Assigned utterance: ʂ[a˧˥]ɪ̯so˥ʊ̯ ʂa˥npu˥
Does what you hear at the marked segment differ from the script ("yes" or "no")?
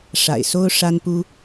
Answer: yes